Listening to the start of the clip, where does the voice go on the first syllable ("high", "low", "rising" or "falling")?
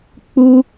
high